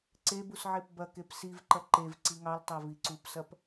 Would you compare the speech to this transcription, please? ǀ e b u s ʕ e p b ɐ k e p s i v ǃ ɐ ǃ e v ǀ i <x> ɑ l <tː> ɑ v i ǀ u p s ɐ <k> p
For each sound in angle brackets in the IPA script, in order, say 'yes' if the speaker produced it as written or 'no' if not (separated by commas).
no, no, no